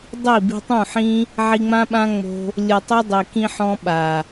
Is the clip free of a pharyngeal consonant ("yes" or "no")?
no